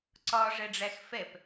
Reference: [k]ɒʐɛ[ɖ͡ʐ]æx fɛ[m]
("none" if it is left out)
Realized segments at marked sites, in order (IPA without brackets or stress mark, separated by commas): ǀ, ɖ͡ʐ, p